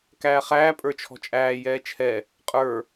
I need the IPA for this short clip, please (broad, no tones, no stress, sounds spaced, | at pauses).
k æː χ æː pʼ ə˞ t͡ʃʰ ɔ̤ t͡ʃʼ æː j ɛː t͡ʃʰ ɛ | qʼ ə˞